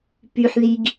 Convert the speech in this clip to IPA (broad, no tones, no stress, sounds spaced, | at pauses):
p y ħ ð i ɡ